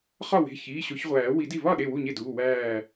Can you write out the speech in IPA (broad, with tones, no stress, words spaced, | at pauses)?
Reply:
χɒ˥˩we̤˩˧˩ çiː˩˧˩ɕo˨˩˦çʁʷæː˨˩˦ wi˨˩˦di˧˩vɒ˥˩ ɗe˥˩wu˥˩ɲe˥˩duː˩˧˩ wæː˧˩